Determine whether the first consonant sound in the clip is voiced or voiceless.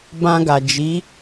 voiced